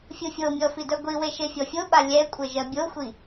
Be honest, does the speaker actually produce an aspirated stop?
no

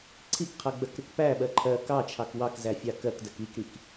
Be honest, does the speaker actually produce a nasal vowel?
no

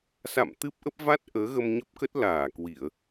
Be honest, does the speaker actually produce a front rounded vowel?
no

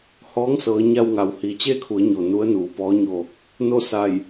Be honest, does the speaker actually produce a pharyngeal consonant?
no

